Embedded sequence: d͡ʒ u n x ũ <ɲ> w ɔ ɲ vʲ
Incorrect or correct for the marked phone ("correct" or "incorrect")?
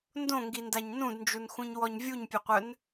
correct